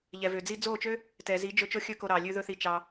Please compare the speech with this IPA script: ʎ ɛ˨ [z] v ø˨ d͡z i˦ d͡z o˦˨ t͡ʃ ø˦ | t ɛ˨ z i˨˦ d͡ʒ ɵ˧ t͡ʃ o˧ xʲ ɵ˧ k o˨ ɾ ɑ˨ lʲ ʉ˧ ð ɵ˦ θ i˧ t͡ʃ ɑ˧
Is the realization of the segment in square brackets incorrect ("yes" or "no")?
yes